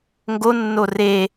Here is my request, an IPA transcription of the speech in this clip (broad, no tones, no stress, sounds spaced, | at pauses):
ŋ ɡ o nː o r e